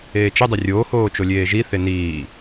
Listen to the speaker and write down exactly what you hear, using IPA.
eː t͡ʃ ɪ dˤ ɪ rʲ oː h oː t͡ʃ o lʲ eː ʒ i θ e n iː

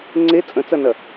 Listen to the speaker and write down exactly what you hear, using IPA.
ŋ͡ǀ e t͡sʼ ə̃ t͡s ɐ n ɐ

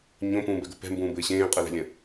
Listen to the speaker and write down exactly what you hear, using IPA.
ɲ õ p ũː b ɛ ɡ o p ɛ̤ m b ũː b ɘː ɕ ẽː qʼ ɘ l ɛ̤ lʲ ə̃

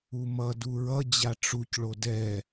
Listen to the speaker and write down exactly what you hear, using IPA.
u m ʌ d u ɹ ʌ d͡ʑ a ʈ͡ʂ u c ɭ o d ɛ

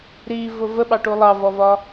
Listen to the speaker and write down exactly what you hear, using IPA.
ɾ i v ʊ v ə ɓ ɑ ʈ u lˠ ɑ v ɔ v ɒ

